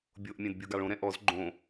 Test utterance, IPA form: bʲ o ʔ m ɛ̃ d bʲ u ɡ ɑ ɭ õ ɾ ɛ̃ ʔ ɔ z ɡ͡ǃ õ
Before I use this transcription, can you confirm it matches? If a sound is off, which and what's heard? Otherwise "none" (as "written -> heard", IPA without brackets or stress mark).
m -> mʲ